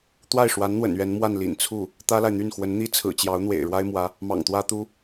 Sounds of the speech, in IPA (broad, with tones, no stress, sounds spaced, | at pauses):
t̪ w a˥˩ ɪ̯ ʂ w a˧˥ n n̪ w ə̰˨˩ n ɥ ɛ˧˥ n m w a˥˩ n l ḭ˨˩ n t͡sʰ u˥˩ | t̪ ä˥ l a˨ ɪ̯ n̪ y˥˩ n x w ə˧˥ n n̪ i˥ t͡sʰ ɹ̩˨˩ t͡ɕ j ɑ˧˥ ʊ̯ n̪ w ḛ˨˩ ɪ̯ ɻ w a˥ ɪ̯ m w ä˧˥ | m ɑ̰˨˩ ŋ t̪ w ä˥ t̪ u˥